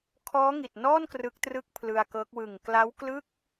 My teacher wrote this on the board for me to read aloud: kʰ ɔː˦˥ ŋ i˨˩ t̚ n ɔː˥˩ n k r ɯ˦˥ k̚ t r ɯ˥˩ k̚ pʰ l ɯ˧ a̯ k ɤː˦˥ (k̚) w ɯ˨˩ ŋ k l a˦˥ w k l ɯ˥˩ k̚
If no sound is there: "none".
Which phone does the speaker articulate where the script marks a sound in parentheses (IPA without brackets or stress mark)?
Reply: k̚